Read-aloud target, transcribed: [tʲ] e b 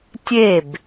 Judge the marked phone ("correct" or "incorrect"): correct